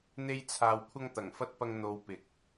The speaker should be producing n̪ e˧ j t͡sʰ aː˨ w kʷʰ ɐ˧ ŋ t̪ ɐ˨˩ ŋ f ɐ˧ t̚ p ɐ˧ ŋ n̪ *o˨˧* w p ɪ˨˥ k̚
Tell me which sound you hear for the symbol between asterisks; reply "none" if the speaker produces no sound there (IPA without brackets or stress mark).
o˨˧